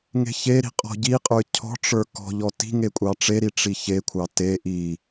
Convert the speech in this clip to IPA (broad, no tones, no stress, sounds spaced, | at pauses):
ŋ e̤ ç e ɾ i̤ qʼ ɔ̤ ɟ i qʼ ə˞ cʰ ɔ̤ ʈ͡ʂ ə˞ k ɔ̤ ʎ ɔ t i̤ ŋ e kʷʼ ɑ ʈ͡ʂ e ɾ i ʈ͡ʂ i ç e kʷʰ ɑ t e ʔ i